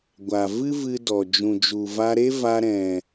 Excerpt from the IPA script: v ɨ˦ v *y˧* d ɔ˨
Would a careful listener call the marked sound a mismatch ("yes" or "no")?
yes